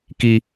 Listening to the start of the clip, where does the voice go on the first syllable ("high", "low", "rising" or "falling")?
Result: high